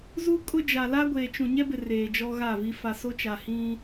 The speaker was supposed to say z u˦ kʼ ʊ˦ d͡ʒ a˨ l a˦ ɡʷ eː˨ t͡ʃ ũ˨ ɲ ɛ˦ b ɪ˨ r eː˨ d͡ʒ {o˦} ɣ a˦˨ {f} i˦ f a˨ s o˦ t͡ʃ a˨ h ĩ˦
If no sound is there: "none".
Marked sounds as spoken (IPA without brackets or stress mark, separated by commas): ɔ˦, v